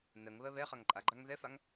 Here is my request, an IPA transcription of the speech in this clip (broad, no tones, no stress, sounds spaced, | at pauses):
n ɜ ŋ β ɜ β ɛ χ a ŋ ǃʼ a ɡ͡ǃ a ŋ ð ɛ f a ŋ